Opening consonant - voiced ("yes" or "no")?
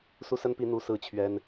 no